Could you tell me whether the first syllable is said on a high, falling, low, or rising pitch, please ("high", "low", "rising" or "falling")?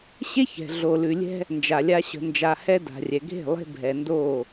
high